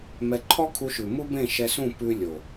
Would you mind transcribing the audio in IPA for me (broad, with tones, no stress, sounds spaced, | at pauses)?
m ɛ˧ ǃʰ ɔ˦ kʰ u˧ ʃ ʉ˨ m u˦ b ẽ˦˨ ʃ ɛ˧ s ũ˦˨ p ʉ˧ lʲ o˨